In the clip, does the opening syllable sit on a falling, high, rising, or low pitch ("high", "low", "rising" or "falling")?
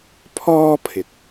high